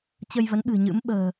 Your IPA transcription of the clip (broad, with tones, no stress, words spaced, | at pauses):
t͡ɕə˧jvə˨˦nɓɨ̤˨˩ɲɨ̰˧˥m ɓə̤ː˨˩